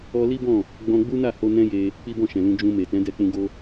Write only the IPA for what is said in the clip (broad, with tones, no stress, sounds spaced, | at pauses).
ɔ˧ l i˦ b ɔ̃˦˨ | ɡ͡b ɔ̃˧ ɡ͡b u˦ n a˦˨ h o˧ n ɛ̃˦ j e˧ | k͡p i˦ b ɔ̃˦˨ ʃ ɛ̃˨ l ũ˧ d͡ʒ ũ˧ m e˨ t ɛ̃˨˦ d ɛ˦˨ k͡p ũ˧ ɡ o˦